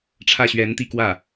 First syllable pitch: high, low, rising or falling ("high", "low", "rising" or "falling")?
falling